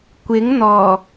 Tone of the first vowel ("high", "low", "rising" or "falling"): rising